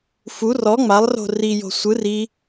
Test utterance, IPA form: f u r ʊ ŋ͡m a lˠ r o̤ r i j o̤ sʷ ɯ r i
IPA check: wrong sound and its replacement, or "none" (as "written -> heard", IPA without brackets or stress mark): ʊ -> ɔ